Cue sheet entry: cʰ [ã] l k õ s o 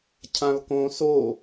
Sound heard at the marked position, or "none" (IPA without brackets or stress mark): ã